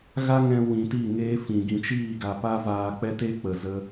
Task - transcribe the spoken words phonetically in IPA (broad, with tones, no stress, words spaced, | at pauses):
ɣa˦ŋɛ̃˧ wĩ˨ti˦˨ŋeː˦ fĩ˨ ɡĩ˨t͡ʃiː˦˨ɡa˨ pa˦vaː˧k͡pɛ˦te˦ k͡pə˨zə˧